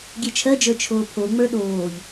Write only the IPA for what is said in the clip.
ɡʲet͡ʃʰɜd͡ʒə˞ t͡ʃʰoːpʰoŋ͡mə˞ ɗoːʎ

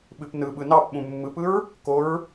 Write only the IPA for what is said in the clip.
ɓɨpnɯɓɯ nɑp ɓũmːɯpɯɹ | koɹ

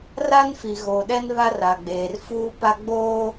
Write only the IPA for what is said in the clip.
ra˦nfi˨ɣoː˨ɗɛ˦n βa˦ra˨ɡ͡beː˨rfuː˦ pa˦ ɡ͡boː˦

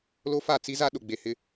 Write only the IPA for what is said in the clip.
lo˦fa˦˨ t͡si˦za˦ ɗʊ˨ɡ͡be˨hɪ˦

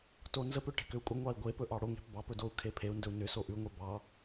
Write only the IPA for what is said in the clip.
tonzəpʏ ʈe̤kʏu̯kʷʼə ŋʷɑi̯ɡʷe pɵʔɑɽo ŋe̤pbɑpɵdou̯ kʰepʰeu̯ ndɵu̯nʏ soʔʉŋʷe bɑ

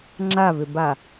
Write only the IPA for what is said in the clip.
ŋ͡ǁavʏba

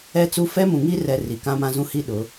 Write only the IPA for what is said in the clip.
ɛ˦t͡su˦ fɛ˦mũ˨ ŋi˦rɛ˨ ri˨kã˦mã˦zũ˦ hi˦ɗʊ˨˦

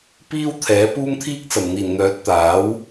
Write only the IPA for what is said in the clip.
piː˥wt̪ʰɛː˨˥ puː˧mt̪ʰiː˧k̚t͡sɐ˨˩mn̪iː˨˩n n̪œː˨˥t̚t̪aː˨˥w

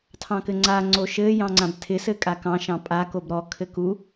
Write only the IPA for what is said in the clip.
tʰɑ̃kɘŋ͡ǀa ŋ͡ǀoʃɘ jɑ̃ŋ͡ǀãbtʰɪ sɘkʼakɑ̃ ʃɑ̃pʼa kobɾɔ kʰɘku

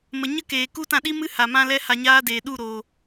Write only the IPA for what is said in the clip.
mə˨ɲə˦keː˨ ku˦tã˧ɗi˦mɨ˦ ha˨mã˦lɛ˦ ha˧ɲaː˦deː˨ ɗu˦˨ɾoː˨

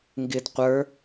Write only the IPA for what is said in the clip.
ŋɡɪdqʷə˞

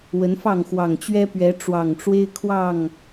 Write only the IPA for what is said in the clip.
wə˨˦nfɑ˥˨ŋxwɑ˨˩ŋ t͡ɕɥɛ˦pɥɛ˨˦ ʈ͡ʂwɑ˨˩ŋʈ͡ʂwe˦ɪ̯kʰwɑ˥˨ŋ

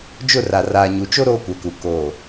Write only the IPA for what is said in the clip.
d͡ʒʊ˦˨ra˨ raː˨ɲu˨t͡ʃo˦ ɾoː˦kʷɛ˨ku˨ ko˨

